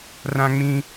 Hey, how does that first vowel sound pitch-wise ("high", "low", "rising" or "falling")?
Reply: high